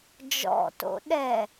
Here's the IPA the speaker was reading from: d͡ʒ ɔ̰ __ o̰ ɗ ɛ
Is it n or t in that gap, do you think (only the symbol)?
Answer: t